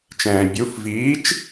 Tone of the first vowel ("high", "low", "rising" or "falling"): low